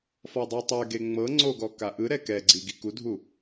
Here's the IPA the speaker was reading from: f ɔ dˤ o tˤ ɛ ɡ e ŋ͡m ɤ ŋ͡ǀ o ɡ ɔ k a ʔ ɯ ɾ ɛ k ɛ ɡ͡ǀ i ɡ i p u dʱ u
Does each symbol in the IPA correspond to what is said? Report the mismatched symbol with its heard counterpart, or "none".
p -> k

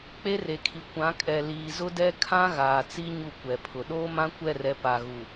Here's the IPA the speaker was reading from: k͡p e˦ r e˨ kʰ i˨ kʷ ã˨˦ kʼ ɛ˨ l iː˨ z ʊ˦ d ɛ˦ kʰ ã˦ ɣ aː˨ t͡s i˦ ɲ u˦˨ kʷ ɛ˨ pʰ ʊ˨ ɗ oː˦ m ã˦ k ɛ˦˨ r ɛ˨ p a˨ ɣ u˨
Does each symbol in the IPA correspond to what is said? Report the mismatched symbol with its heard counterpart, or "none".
k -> kʷ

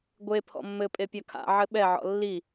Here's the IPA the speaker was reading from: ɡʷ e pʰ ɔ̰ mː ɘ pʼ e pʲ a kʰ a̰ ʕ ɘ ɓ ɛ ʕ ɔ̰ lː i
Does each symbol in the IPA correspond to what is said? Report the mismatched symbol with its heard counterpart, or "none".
none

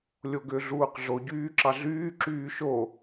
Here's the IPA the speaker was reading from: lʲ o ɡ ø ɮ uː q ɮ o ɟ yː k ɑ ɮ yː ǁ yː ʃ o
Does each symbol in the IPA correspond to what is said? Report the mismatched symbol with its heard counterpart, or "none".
k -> ǁ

